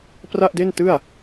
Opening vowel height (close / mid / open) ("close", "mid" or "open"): open